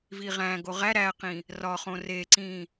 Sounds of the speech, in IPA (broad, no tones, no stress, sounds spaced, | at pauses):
v i ʁ æ̃ ɡ o ʁ æ ɾ æ q ĩ | r ɒ χ õ r e ǀ ĩ